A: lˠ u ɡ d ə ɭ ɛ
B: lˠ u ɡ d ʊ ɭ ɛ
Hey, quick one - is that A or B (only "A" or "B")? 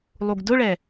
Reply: B